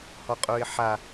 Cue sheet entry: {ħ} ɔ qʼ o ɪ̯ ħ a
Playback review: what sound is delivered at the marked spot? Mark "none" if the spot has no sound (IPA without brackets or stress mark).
h